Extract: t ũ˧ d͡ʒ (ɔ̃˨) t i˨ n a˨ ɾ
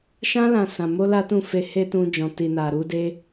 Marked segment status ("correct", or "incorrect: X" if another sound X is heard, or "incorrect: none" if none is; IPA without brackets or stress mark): correct